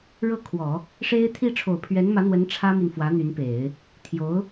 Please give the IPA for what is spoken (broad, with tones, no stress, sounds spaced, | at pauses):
ɻ ɤ˥˩ kʰ w ɔ˨˩˦ | ʂ e˥ ɪ̯ t̪ʰ i˥˩ ʈ͡ʂʰ o˨˩ ʊ̯ pʰ ɥ ɛ˧˥ n m ä˧˥ n̪ w ə˧˥ n ʈ͡ʂʰ ä˥ m i˨ n f w ä˧˥ n̪ y˧˥ n p e˨˩˦ ɪ̯ | t̪ʰ j o˧˥ ʊ̯